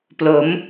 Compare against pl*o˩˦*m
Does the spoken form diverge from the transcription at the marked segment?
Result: no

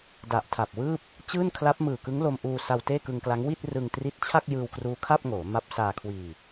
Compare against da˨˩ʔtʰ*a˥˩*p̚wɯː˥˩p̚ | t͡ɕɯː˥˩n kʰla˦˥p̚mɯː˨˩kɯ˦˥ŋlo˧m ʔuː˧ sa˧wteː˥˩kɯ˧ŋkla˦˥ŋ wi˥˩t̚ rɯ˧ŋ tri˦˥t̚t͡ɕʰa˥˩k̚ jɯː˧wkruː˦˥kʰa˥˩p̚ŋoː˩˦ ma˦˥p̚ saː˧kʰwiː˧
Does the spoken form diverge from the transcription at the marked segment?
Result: yes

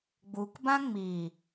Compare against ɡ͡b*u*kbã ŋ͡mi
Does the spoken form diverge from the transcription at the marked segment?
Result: no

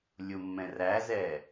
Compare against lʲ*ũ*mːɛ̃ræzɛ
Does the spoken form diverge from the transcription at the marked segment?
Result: yes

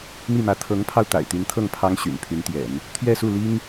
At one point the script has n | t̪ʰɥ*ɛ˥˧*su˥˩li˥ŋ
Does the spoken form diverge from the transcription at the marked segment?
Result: no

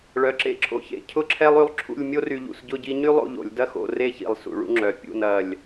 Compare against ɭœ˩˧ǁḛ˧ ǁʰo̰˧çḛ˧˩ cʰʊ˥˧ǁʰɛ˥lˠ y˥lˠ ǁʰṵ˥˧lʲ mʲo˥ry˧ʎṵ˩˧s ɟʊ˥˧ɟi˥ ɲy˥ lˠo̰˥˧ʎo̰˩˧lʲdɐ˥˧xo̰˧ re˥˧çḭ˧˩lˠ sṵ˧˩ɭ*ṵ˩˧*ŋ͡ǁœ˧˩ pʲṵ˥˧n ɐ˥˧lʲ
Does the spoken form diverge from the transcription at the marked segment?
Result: yes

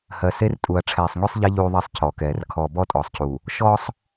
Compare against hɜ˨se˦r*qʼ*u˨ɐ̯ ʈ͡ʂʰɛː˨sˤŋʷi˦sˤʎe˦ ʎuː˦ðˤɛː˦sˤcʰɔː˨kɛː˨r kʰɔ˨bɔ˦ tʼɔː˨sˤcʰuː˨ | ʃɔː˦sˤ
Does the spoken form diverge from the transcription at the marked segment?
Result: yes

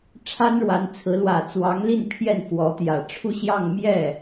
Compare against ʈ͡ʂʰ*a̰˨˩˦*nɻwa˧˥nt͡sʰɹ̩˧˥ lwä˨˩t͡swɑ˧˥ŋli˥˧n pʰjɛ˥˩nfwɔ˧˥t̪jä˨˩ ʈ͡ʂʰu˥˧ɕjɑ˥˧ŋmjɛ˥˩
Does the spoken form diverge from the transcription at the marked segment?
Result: yes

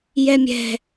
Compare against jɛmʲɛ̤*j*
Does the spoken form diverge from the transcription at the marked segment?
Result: yes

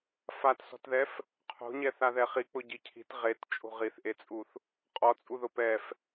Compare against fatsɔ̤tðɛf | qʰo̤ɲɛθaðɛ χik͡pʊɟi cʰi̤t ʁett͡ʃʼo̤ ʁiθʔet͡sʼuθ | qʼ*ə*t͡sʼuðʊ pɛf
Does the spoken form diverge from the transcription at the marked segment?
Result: yes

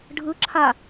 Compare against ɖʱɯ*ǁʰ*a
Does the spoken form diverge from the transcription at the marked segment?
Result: no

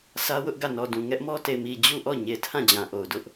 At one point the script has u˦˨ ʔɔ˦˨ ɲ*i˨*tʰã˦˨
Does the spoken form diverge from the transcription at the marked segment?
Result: yes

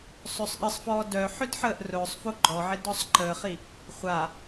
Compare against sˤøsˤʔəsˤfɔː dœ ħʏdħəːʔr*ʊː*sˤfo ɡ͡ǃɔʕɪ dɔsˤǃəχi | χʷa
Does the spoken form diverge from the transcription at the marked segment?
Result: no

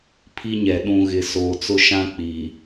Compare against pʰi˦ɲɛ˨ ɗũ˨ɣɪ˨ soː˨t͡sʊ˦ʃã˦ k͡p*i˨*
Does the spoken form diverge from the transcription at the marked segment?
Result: no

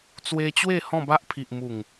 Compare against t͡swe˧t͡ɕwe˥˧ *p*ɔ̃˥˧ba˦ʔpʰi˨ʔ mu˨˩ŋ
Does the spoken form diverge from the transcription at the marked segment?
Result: yes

